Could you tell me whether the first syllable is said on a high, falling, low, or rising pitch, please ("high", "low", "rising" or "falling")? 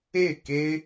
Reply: falling